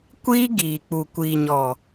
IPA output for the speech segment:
kʷ iː˦ ɡ iː˨ k͡p u˨ kʷ iː˨ ɲ ɔ˨

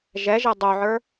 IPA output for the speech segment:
ʒ ɛ ʒ ɛ dˤ o ʕ ə˞

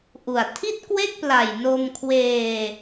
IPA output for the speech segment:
ʔ u˨˩ a̯ tʰ i˥˩ t̚ k w e˥˩ k̚ p l a˨˩ j n o˧ m kʰ w eː˧

